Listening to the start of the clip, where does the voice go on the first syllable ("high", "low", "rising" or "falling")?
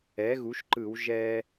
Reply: rising